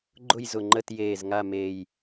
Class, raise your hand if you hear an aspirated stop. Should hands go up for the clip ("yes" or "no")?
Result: no